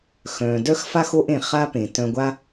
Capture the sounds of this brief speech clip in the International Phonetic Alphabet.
x œ̃ː˩ d œ˥ x f a˥ x o˥ ʔ ẽ˩ χ a˥ p ẽ˩ t œ̃˧ ɡʷ a˥

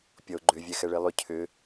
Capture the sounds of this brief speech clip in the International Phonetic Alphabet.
pʲ ɔ ʊ̯ ɡ͡ǃ ʏ vʲ ɛ x ɛ ɭ e lˠ ʏ cʰ ʏ

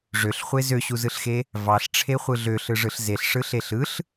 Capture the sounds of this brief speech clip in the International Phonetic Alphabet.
ʐ ø ɬ χʷ e z ø ɕ u z ɯ ɬ x e | v ɑ ɬ ʈ͡ʂʰ e χʷ ɯ ɮ ø ɬ ɯ ʐ ɯ ɬ z e ɬ ʂ ɯ ɬ e ɬ ɯ ɬ

